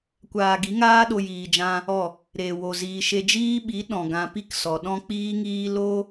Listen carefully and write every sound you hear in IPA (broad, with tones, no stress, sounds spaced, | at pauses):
kʷ aː˧ ɡ i˨˦ ŋ aː˦ ɗ o˧ j iː˧ d͡ʒ ã˦ | ɔ˦˨ | ɾ eː˨ w o˨ z iː˨ ʃ e˧ d͡ʒ iː˦ ɓ i˨˦ ɗ ɔ̃˨ ɡ ã˧ p i˦ k s ɔ˨ ɗ ɔ̃˦ k͡p iː˦ ŋ iː˦ l o˦